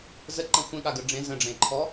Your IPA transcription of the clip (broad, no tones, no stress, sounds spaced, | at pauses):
z ə ǃ ə̃ xʷ ẽ ɠ a ɡ ə ɖ͡ʐ ẽ z ə̃ ɖ͡ʐ ẽ ǃʰ ɔ